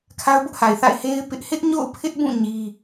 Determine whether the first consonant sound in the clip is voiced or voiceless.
voiceless